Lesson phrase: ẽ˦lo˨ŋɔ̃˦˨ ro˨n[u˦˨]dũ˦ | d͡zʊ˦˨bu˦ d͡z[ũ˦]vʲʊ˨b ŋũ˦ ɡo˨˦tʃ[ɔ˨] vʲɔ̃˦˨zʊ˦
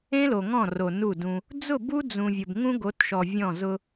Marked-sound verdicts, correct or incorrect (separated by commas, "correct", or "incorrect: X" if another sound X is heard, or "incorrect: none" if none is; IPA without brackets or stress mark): correct, incorrect: ũ˨, correct